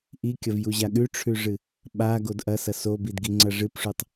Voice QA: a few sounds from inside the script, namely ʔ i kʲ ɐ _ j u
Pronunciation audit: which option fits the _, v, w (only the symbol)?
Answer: v